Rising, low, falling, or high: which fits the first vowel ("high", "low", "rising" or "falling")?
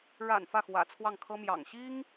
low